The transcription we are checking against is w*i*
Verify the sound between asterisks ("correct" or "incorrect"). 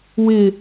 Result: incorrect